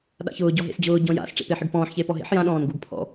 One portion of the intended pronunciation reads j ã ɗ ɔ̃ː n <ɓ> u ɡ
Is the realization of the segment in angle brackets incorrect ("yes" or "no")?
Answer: yes